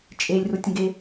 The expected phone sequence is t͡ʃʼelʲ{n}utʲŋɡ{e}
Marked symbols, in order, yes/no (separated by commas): no, yes